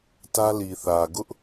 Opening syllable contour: high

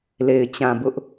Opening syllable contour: low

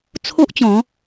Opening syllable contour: high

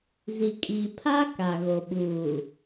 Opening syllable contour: low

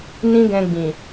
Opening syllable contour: high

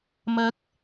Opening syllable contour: rising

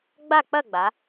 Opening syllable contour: falling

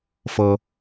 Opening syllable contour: high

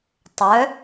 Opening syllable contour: rising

